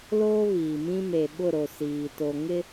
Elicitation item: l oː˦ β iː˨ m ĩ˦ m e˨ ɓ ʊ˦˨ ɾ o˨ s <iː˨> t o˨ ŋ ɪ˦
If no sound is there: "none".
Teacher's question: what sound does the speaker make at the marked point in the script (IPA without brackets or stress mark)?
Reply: iː˨